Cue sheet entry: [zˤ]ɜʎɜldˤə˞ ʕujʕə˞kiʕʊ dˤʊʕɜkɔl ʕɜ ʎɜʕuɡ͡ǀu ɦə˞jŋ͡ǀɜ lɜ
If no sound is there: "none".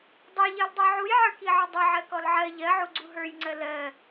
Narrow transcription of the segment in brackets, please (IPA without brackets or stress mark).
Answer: dˤ